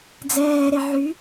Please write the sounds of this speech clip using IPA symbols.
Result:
d͡z ɛː ɾ e ʕ y

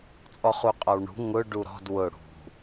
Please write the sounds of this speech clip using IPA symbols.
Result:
t͡sʼ ɔ χ u qʼ ɔ w ɳ ṳ ŋ ʊ ɖ u ɾ ɔ̤ d w ʊ ɽ ṳ

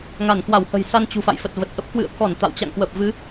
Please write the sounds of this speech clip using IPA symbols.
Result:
ŋ a˧˩ n k w a˧˩ w h ə̤˨˩ j s a˧ n t͡ɕ ṳ˨˩ f a̰˧˨ j f ə˨˩ t̚ v ə˨˩ t̚ ʔ ə˦˥ p̚ k w ɨ̰˧˨ ə̯ k ɔ˧˩ n t̪ a̰˧˨ w t͡ɕ a̰˧˨ ŋ k w ə˨˩ p̚ v ɨ˨˦

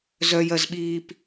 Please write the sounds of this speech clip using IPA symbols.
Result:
z œ j ɜ z ɓ iː p

